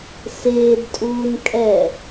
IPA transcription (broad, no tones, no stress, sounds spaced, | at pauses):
s ɪː d tʼ uː n kʼ ɛ